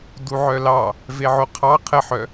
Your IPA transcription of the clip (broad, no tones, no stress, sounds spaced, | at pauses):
d u ʕ œ l ɑ | v e ʕ o qʰ ɑ qʰ ə ħ œ